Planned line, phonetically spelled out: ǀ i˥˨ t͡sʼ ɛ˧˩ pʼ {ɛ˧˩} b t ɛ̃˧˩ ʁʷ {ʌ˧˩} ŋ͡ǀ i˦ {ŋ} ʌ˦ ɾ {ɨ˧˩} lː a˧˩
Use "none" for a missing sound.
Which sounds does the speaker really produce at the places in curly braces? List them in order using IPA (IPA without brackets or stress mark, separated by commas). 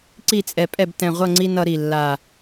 ɛ˥˨, ʌ˥˨, n, i˧˩